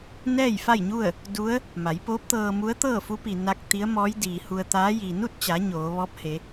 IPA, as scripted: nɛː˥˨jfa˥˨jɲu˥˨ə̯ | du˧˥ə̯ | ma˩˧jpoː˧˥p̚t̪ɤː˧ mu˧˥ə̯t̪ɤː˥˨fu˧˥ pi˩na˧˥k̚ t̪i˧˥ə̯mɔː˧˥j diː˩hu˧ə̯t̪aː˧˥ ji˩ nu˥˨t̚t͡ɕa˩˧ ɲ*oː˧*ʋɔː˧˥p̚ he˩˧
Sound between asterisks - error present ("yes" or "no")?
yes